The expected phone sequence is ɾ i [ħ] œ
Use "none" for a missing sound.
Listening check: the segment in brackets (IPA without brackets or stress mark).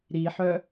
ħ